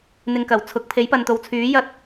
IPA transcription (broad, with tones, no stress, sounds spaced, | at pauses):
n̪ ɪ˧ ŋ k ɐ˨˩ w t͡sʰ ʊ˨˥ k̚ pʰ e˨˥ j p ɐ˨ n t̪ o˨˧ w t͡sʰ yː˨˥ j ɐ˧ t̚